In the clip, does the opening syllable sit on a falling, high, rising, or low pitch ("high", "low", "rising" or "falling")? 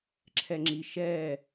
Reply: low